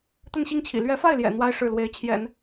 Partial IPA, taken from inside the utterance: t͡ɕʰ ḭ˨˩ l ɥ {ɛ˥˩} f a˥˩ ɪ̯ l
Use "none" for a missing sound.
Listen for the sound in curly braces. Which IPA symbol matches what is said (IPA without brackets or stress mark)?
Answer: ɛ˧˥